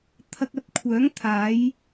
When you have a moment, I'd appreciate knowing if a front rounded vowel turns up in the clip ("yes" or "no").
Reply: yes